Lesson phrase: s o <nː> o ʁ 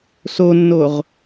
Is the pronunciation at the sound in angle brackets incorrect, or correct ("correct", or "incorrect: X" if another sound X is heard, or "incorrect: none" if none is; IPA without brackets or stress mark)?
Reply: correct